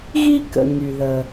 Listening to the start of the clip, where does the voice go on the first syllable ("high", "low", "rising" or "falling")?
high